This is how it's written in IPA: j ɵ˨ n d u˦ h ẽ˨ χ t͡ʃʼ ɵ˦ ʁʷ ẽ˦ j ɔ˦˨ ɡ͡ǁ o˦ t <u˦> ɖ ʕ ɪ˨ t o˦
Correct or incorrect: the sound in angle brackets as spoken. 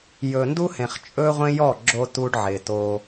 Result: correct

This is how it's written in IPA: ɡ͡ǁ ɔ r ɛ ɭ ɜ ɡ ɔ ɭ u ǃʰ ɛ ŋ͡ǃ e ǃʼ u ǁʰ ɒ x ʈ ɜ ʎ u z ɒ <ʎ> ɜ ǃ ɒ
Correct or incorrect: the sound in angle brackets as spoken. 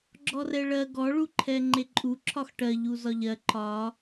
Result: correct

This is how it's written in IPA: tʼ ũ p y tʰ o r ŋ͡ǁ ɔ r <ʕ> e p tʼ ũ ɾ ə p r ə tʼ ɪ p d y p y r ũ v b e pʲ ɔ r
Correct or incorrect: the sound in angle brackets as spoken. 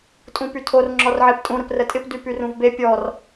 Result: correct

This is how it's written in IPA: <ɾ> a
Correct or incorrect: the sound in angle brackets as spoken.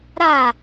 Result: correct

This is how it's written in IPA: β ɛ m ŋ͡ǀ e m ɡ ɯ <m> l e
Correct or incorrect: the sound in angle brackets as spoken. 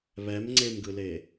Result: incorrect: none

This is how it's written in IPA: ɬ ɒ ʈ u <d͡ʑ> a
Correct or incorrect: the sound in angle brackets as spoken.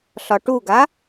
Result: incorrect: ɡ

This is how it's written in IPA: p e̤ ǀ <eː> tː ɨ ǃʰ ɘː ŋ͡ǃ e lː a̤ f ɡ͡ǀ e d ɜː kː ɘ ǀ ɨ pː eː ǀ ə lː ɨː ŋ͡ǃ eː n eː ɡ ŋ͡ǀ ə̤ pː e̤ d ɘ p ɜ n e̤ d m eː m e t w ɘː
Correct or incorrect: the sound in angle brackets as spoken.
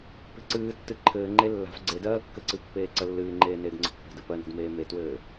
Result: incorrect: ɨː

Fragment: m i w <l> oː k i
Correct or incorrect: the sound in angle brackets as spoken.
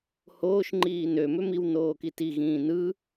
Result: incorrect: n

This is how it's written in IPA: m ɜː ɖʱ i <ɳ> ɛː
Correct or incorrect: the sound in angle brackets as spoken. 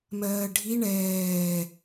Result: correct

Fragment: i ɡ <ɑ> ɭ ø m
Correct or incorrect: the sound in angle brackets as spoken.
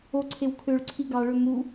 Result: correct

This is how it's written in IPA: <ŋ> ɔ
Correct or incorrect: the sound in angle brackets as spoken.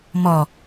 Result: incorrect: m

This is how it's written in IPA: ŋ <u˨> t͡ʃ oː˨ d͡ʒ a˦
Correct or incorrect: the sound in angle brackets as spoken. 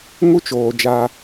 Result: incorrect: u˦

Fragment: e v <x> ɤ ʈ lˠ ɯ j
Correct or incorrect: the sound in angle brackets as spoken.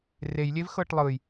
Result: correct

